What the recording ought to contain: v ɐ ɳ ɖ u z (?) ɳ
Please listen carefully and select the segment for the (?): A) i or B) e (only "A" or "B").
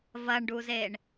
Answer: B